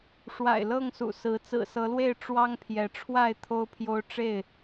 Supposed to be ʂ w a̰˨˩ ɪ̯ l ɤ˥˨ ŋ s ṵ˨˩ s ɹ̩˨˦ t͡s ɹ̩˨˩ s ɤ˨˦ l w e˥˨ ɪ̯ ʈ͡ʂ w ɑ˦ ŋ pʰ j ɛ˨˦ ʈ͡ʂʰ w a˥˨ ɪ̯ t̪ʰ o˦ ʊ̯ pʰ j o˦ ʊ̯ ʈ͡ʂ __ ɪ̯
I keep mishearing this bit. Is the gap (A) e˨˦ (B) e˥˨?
B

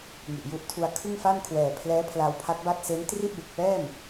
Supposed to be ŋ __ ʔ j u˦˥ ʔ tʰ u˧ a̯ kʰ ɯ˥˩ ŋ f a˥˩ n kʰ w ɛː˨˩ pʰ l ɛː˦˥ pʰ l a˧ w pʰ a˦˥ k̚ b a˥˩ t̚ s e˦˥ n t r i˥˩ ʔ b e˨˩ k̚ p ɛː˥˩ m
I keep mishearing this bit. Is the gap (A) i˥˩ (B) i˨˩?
B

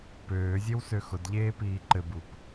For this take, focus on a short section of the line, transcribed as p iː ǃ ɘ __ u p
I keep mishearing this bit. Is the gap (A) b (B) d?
A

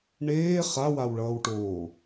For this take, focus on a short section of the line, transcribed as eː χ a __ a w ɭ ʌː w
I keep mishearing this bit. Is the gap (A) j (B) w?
B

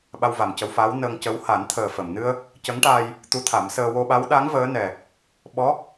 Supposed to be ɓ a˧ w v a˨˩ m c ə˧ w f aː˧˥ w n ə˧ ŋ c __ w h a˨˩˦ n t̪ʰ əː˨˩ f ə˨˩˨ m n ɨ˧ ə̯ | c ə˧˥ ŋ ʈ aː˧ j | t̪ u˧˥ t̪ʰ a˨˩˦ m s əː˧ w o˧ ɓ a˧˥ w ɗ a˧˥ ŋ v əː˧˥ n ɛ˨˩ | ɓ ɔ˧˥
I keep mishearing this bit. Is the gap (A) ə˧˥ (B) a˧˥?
A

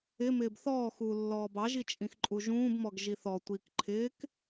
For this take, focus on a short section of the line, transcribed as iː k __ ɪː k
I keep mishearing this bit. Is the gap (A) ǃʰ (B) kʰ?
A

